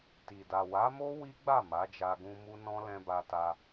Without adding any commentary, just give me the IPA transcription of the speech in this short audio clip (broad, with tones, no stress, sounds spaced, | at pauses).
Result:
t i˨ d a˨ w a˨˦ m o˦ w i˦ ɡ͡b a˦˨ m a˨˦ d͡ʒ a˧ ɡ ũ˧ m u˦ n ɔ̃˦ l ɛ̃˧ b a˧ t a˧